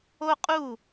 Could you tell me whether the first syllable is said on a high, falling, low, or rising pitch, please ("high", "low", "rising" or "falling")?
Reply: high